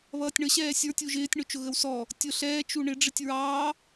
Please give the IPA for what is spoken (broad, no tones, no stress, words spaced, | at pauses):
βʌːtʲɳə ɕɛːsʲə˞ tʲuʒɪːtʲ ɳʊt͡ʃʊɣəwsɔ | tʲʊ ɬɛː t͡ʃuɳɪ ɖ͡ʐɪtʲɹɑː